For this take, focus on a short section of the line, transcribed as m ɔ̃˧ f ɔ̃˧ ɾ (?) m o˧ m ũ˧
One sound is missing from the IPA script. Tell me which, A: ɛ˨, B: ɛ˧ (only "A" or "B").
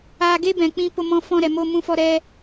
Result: A